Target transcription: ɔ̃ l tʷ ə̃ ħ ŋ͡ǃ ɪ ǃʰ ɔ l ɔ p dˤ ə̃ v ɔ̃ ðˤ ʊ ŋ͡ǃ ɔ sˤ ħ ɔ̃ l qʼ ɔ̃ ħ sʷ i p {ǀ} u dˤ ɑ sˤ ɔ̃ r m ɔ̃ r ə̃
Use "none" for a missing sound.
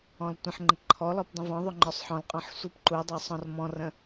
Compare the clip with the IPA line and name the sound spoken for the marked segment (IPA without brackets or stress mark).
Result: ǃ